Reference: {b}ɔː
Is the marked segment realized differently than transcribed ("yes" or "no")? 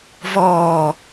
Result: yes